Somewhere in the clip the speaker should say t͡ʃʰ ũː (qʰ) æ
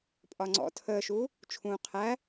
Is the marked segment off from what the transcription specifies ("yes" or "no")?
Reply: no